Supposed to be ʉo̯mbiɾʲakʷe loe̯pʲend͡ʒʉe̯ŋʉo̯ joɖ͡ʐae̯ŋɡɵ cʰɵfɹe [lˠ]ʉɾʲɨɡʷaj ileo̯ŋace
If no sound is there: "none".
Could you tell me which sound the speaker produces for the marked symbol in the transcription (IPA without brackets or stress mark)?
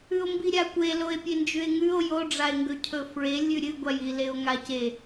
lʲ